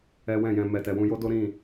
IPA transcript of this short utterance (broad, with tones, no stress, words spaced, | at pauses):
ɛ˦wɛ̃˦˨jɛ̃˧ mɛ˨tɛ˨ wũ˧jo˦do˦ ɾĩ˦˨